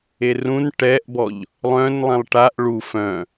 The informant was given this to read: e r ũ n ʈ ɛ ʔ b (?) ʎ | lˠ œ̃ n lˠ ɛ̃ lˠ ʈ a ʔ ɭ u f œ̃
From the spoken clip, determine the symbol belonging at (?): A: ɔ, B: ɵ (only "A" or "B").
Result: A